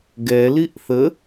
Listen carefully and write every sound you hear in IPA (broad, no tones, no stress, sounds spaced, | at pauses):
ɡ ɛ l i ʔ θ ə